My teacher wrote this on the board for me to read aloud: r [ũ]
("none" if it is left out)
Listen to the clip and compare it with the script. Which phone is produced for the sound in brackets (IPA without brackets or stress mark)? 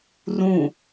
ũ